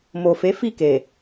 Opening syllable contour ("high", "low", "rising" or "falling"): low